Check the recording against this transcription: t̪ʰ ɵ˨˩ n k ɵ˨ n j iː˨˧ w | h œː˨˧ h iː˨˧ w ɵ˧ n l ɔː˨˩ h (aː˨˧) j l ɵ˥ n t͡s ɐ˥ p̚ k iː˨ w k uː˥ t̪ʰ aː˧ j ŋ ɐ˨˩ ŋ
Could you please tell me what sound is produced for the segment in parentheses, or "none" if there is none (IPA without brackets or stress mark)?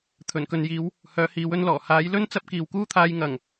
aː˨˧